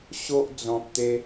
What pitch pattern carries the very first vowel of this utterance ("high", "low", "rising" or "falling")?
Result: high